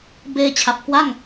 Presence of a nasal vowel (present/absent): absent